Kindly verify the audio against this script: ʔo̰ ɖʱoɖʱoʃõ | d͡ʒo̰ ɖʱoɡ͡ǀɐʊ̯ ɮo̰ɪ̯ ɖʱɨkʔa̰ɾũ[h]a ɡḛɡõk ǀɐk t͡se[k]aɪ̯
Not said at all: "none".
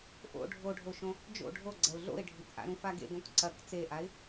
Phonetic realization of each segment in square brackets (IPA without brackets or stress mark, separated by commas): f, ʔ